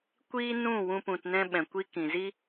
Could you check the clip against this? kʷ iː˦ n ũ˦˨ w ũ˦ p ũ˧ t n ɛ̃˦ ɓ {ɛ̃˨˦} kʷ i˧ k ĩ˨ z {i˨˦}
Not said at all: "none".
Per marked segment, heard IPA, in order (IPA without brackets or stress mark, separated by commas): ɛ̃˨, i˦